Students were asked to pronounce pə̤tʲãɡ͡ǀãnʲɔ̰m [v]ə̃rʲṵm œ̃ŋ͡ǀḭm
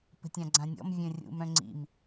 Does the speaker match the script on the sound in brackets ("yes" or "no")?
no